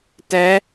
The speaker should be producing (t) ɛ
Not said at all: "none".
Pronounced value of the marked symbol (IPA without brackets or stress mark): t